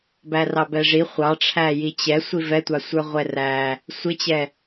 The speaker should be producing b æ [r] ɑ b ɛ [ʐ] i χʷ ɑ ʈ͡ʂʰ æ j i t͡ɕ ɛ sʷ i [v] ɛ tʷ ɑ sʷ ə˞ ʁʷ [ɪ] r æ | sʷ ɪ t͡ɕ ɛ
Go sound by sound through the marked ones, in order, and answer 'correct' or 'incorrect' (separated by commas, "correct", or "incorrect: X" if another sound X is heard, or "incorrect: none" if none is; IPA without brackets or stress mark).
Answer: correct, correct, correct, incorrect: ɛ